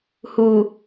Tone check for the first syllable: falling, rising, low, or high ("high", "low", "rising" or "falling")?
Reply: low